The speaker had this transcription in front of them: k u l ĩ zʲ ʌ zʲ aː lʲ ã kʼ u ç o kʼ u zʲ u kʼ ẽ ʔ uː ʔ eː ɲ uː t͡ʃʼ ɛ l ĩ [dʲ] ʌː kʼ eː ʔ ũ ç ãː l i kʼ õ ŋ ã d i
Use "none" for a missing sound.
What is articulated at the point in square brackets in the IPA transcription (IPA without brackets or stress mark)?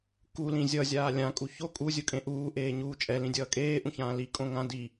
dʲ